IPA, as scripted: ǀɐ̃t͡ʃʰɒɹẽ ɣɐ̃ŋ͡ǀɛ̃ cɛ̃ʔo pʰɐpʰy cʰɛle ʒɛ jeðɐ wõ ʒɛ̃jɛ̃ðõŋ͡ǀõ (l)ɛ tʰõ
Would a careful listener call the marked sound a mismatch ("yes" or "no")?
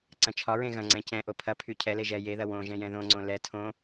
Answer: no